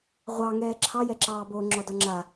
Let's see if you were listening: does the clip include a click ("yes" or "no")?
yes